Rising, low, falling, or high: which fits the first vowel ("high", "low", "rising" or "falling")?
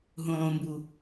low